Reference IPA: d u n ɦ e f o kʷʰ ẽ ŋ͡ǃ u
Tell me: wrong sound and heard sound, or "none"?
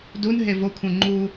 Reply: f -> v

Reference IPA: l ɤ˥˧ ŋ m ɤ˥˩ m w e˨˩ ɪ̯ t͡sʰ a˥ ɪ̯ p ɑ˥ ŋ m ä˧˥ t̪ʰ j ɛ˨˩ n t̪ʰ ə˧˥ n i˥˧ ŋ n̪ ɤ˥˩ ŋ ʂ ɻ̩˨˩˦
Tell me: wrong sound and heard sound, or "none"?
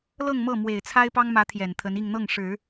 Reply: none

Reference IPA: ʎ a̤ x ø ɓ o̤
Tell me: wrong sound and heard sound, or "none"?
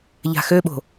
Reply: none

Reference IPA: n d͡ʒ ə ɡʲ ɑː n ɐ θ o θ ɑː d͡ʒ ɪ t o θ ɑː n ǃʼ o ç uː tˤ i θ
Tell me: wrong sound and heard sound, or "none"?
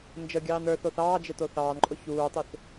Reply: ɐ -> ə˞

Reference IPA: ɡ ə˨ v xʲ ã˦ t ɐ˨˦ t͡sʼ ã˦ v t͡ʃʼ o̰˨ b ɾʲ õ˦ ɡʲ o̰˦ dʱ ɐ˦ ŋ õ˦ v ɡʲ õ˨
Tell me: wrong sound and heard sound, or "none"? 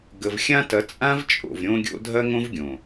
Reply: b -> v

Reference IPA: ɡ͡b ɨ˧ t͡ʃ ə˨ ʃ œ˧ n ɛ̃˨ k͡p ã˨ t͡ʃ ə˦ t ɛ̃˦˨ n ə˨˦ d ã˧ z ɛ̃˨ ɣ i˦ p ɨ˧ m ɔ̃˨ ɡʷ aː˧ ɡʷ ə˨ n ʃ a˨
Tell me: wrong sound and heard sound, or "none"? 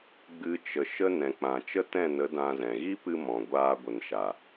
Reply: œ˧ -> ə˧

